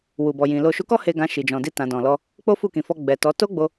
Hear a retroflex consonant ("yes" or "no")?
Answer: no